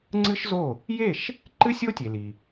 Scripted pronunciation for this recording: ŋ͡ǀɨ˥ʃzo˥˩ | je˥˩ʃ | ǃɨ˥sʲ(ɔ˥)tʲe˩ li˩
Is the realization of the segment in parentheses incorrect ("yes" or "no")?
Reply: yes